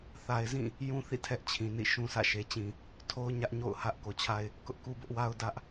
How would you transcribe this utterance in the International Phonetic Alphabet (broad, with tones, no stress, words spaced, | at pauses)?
θa˨ɪ̯zĩ˦˨ | jũ˦θḭ˦˨ tʰɛ˦ʔt͡ɕʰĩ˨nḭ˦˨ ʃũ˦ sʰä̰˦˨ʃe˨t͡ɕĩ˨ | tʰo˦ʊ̯ɲä˦ʔ ɲo̰˦˨ʊ̯hä˦ʔ ko˨t͡ɕʰa˦ɪ̯ | kʊ˦ʔku˦bʊ˦ʔwa˦ʊ̯ dä˦ʔ